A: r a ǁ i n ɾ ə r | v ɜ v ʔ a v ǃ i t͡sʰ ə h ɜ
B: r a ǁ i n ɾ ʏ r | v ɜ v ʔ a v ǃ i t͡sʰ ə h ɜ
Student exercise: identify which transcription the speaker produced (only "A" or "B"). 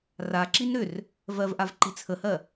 B